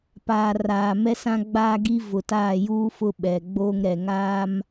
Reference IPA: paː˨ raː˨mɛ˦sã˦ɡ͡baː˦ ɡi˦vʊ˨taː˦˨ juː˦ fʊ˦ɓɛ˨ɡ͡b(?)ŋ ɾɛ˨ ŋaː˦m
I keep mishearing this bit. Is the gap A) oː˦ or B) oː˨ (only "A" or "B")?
A